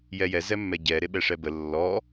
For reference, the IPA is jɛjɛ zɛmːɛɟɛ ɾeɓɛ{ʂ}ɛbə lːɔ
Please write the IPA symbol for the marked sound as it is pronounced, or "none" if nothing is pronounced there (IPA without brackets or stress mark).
ʂ